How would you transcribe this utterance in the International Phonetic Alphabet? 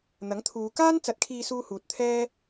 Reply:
n̪ ɐ˨˥ ŋ t̪ʰ uː˨˧ k aː˥ n t͡s ɐ˨˥ t̚ kʰ iː˧ s uː˧ h uː˨ t̚ t̪ʰ ɛː˥

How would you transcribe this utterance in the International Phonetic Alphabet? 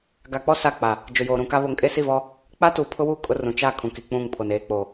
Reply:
ɡ a˨ k͡p ɔ˦ s a˦˨ k͡p a˨ | d͡ʒ ʊ˨ j oː˨ ɾ ũ˨ k a˦ β o˨ ŋ kʼ e˦ s i˦˨ v ɔ˦ | k͡p a˦ t uː˨ pʰ ʊ˦ w uː˦ kʼ ʊ˦ r ũ˨ t͡ʃ a˦˨ kʰ ũ˨ k i˨ k͡p ũ˦˨ ŋ pʰ o˨ n eː˨ k͡p o˨

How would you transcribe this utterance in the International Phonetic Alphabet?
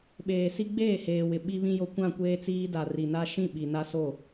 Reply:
ɓ eː˨ s i˦ ɡ͡b eː˦˨ h eː˨ w ɪ˨ ɓ i˦ β ĩ˦ j o˦ kʷ ã˦˨ kʷ eː˦ t͡s iː˦ d a˨ r i˨ n a˦ ʃ ĩ˦˨ ɓ i˨ n a˦ s o˦˨

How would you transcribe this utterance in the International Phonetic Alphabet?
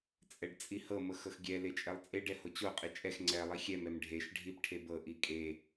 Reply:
t͡sʼ ɛ ɖ t͡sʼ i h ɤ m ɤ x ɤ x ɡʲ ɛ l e t͡ʃʼ ɛ lˠ t͡sʼ e ɖ ɛ h o t͡ɕ o qʼ i t͡ʃʼ ɛ x ŋ͡ǀ ɛ lˠ i xʲ ɛ m ɛ m ɖʱ e ʃ ɖʱ i p ʈʰ e b ɤ ʔ i kʼ e

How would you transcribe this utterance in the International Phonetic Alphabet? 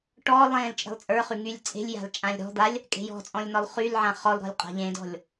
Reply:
ʈ ɔ lˠ ẽ l t͡ʃʼ e̤ lˠ t͡sʼ ə˞ χ y ŋ y lʲ t͡sʼ e̤ lʲ j a̤ l t͡ʃʼ ã lʲ ɾ ɔ̤ d̪ a lʲ | kʼ e̤ j ɔ̤ t͡sʼ ɔ̃ lʲ n ɔ lˠ χ y l ʕ ã χ ɔ l ɾ ɔ̤ lʲ qʼ a̤ ʎ ẽ d ɔ̤ lʲ

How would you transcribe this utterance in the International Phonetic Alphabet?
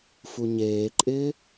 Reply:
f u ɲ eː ǃʼ ɪː

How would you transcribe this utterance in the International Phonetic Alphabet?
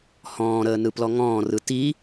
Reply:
h ɔ̃ː ɾ əː n ɯ p l ɔ ŋ ɔ̃ː r ɯ t i

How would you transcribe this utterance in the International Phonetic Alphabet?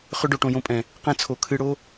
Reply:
χ ʏ˧ ɖ o˨ ʈ õ˧ j õ˧ pʼ ɛ̃˨ | q ɛ̃˧ t͡sʰ o˨ kʰ ɨ˧ ɽ o˦

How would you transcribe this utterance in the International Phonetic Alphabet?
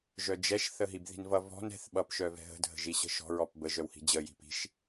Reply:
ʒ œ d͡ʒ ɛ ʃ θ ə ɦ i b ð i̤ n v ʌ v ɔ̤ n ɛ̤ θ ɓ ʌ p ʃ œ v ɛ̤ ɦ ə̤ dʱ ə̤ ʒ i ɕ ə̤ ʃ ɔ̤ ɹ ɔ p b ə ʒ œ w h i̤ d͡ʑ ə j i̤ p i̤ ʃ

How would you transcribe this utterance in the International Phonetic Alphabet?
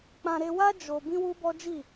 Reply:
k͡p ã˧ ɾ e˧ w a˦ d͡ʒ o˧ b ĩ˦ w u˦ b ɔ˦ d͡ʒ i˦˨

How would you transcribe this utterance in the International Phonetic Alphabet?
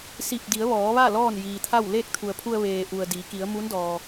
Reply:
s i˧˩ p̚ d i˩˧ ə̯ ʋ ɔː˩˧ ʋ a˥˨ l ɔː˥˨ n j iː˩ t̪ʰ a˥˨ w l eː˥˨ k̚ t̪ʰ u˩ ə̯ pʰ u˧ ə̯ ʋ eː˩ ʔ u˩ ə̯ d iː˩˧ k i˩˧ ə̯ m u˧˥ n d ɔː˩

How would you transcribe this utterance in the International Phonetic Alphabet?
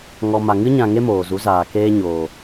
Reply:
ŋ ɔ˨ m a˨ ŋ ɨ˦ ɲ ã˧ ŋ e˦ m oː˨ z u˨˦ z aː˨ k eː˦ ɲ oː˨

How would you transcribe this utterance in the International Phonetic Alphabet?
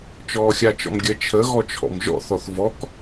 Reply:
t͡ʃ ɔː xʲ a t͡ʃ ɔ̰ m ɡʲ ə t͡ʃʰ ə ɣ ɔ t͡ʃʰ ɔ̰ m ʒ ɔ̰ θ ɔ θ v ɔ k

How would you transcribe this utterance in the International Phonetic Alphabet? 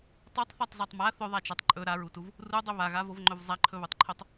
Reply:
tˤ o tˤ θ a tˤ z a tˤ m a θ ɵ ðˤ a t͡ʃ a tˤ ǃʼ ɵ ɾ a ɹ u t u v | r u dˤ ɵ β a ɣ a v o v ŋ͡ǃ ɵ v zˤ a ǃʰ ɵ β u tˤ ǃʰ o tˤ

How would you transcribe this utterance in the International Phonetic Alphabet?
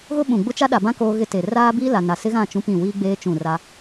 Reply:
ɣ ʊ˦ ɓ ũ˨ ɡ͡b ʊ˦ t͡ʃ a˦ ɗ a˨ b ã˦ k oː˦ ɣ ɪ˦ t eː˨ r aː˦ b iː˦ l a˨ n a˨ s ɪ˦ ɣ ã˦˨ t͡ʃ ũ˦ p ĩ˦˨ w iː˦ ɡ͡b eː˦ t͡ʃ ũ˦˨ r a˦

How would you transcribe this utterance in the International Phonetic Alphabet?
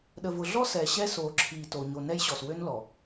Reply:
ɗ ə˨ v ʊ˨ ɮ ɔ˦ s ɛː˨ ɕ ɛ˦ s oː˨ ǁʰ iː˨ t oː˨ ɲ o˨ n ɛ˦ j ɕ ɔ˨ s w ø˦ n l ɔ˨

